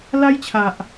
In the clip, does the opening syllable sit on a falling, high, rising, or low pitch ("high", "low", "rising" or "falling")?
high